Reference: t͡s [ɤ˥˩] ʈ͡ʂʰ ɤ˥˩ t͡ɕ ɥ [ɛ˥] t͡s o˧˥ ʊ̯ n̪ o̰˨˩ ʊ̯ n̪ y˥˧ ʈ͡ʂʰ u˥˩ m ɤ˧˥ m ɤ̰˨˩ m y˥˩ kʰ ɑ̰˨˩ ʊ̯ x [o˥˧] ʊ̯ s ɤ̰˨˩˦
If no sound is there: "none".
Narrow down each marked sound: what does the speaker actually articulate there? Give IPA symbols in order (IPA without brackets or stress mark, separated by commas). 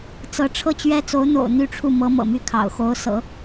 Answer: ɤ˧˥, ɛ˥, o˧˥